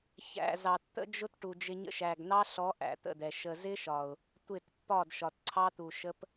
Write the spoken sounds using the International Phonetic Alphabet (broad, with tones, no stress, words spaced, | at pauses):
çæ̰˨ zɑ˨tt̪ə̰˦d͡ʒʊ˦t ʈu˨d͡ʒɪ˧ɲə̰˦ ʃæ˨ɡn̪ɑ˦ɬɔ˨˦ ʔæ̰˨t̪ə̰˦˨d̪ɛ˨ ʃə˨zɪ˦ʃɒ˨ʊ̯ | tʷɪ˦˨t pːɒ˦˨dʃɒ˨t ǀʰɑ˦t̪u˨ʃə˦p